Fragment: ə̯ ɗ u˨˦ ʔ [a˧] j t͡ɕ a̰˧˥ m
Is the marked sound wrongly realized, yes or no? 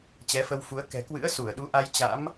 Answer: no